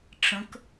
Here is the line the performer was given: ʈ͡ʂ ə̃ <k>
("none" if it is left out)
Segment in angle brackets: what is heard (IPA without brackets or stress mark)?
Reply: k